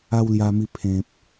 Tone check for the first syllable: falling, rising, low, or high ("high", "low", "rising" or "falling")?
high